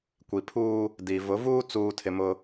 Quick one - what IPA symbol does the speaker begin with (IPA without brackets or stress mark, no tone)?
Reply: kʷ